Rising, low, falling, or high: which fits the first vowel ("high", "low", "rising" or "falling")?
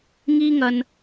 high